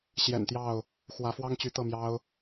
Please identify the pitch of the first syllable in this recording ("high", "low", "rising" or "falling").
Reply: low